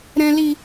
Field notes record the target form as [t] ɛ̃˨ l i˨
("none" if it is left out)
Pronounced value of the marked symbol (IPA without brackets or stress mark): ɾ